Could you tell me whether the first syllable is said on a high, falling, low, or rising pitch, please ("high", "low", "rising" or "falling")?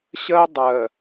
high